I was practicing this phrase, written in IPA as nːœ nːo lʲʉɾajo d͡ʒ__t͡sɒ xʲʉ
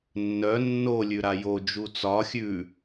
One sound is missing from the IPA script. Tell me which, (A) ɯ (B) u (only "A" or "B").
B